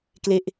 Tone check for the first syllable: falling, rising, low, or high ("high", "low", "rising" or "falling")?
falling